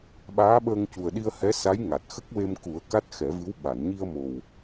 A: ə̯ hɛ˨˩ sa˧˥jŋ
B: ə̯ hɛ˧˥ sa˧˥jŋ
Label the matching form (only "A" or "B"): B